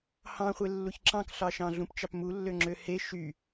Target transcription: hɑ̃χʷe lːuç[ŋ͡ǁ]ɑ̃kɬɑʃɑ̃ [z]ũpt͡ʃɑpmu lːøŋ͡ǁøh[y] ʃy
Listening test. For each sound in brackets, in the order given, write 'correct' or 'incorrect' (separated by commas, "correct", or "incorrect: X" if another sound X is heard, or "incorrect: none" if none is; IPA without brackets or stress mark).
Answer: incorrect: ǁ, incorrect: ɮ, incorrect: e